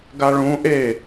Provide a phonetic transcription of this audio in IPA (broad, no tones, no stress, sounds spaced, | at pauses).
ɡ a ɭ ũ ʔ e